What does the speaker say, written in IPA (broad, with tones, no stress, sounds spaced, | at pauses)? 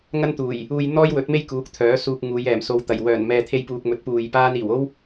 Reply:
ŋ ɐ˥ n t̪ uː˨˩ j | uː˧ j n̪ ɔː˥ j w ɵ˨˥ t̚ m e˥ j k uː˨˥ k̚ t̪ʰ œː˨˥ s uː˧ k̚ ŋ uː˨˧ j ɛː˨˩ m s o˨˧ w t̪ ɐ˨˩ j w œː˨˩ n m ɛː˨ t̪ʰ e˧ j p uː˨ k̚ m ɵ˨˥ t̚ p uː˨ j p aː˥ n iː˨˩ w o˥ w